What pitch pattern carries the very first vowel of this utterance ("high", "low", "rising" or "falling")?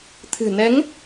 low